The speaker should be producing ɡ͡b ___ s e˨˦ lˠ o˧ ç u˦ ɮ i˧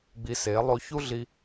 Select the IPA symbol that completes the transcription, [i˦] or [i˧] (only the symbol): i˧